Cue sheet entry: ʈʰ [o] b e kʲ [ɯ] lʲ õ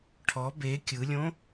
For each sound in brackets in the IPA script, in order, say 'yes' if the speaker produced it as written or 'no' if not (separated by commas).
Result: no, yes